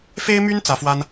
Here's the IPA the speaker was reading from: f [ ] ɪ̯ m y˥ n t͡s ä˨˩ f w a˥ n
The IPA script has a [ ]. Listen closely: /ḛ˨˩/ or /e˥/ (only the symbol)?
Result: e˥